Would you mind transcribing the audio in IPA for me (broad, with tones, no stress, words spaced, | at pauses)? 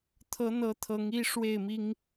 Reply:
t̪ʰɤ˨˦n̪ɤ˨˦ t̪ʰɤ˨˦ŋi˦ʂwe˥˨ɪ̯mi˦ŋ